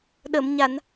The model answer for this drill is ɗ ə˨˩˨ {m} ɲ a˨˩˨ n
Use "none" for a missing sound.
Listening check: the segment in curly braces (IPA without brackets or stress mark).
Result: m